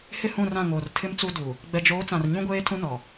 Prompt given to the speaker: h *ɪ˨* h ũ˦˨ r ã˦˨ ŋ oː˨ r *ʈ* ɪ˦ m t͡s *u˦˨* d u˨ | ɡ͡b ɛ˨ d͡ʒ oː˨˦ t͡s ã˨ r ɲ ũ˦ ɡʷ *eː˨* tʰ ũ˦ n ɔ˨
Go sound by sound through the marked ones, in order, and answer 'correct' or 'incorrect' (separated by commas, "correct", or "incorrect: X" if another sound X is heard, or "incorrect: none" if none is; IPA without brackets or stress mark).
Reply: incorrect: ɪ˦˨, incorrect: tʰ, incorrect: u˦, incorrect: eː˦